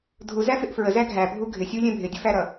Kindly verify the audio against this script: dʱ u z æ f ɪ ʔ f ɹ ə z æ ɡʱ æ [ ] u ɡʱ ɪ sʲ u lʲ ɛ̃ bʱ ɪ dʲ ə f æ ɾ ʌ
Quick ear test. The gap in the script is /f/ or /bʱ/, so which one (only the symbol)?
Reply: bʱ